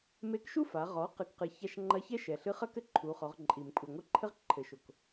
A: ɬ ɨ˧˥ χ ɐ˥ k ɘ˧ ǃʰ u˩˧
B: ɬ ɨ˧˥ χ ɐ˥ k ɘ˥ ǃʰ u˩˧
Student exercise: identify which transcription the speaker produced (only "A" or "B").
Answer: B